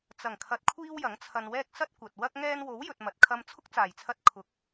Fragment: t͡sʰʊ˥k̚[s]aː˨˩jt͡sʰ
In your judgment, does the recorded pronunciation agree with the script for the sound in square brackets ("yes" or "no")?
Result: no